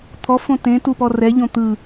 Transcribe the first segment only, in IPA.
t̪ʰ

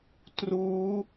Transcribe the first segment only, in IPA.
t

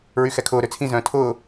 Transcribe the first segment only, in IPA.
ɹ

